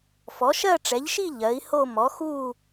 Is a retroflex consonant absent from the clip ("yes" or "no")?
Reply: no